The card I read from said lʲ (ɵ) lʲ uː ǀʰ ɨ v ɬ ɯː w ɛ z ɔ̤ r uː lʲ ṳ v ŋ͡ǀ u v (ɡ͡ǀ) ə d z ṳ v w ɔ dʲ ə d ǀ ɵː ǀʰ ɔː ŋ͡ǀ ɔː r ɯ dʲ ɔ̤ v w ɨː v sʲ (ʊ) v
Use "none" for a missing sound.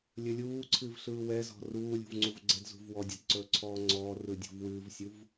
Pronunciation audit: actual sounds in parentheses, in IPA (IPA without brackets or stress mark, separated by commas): ɵ, ɡ͡ǀ, u